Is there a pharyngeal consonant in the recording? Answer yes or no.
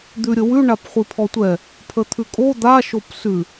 no